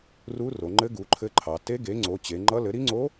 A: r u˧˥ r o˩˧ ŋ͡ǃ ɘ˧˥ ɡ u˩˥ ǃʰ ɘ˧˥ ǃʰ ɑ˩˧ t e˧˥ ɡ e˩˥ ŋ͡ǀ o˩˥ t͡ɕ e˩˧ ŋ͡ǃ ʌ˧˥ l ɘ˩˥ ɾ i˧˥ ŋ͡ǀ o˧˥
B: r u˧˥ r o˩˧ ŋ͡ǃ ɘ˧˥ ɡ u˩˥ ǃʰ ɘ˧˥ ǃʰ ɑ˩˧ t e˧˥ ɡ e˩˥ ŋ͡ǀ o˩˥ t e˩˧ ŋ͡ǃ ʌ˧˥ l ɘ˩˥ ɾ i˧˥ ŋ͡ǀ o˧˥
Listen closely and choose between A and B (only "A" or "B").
A